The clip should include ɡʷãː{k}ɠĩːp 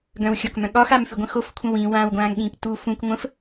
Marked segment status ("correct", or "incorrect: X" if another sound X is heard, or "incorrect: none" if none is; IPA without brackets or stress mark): incorrect: ŋ